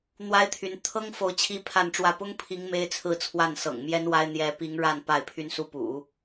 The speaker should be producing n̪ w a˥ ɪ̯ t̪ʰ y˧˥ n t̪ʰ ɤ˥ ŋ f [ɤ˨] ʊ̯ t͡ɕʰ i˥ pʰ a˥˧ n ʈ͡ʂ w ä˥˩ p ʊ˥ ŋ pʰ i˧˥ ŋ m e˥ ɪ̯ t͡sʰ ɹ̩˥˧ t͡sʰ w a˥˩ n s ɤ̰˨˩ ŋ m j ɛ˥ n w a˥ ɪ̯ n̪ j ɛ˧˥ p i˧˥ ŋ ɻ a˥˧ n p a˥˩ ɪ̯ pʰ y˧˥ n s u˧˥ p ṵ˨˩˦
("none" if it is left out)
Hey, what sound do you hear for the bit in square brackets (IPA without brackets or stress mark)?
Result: o˨